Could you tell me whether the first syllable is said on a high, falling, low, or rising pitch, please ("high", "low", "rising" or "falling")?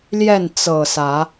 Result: falling